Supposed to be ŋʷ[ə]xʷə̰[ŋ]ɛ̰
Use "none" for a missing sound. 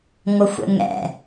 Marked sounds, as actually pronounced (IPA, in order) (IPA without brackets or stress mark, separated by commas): ə, ŋ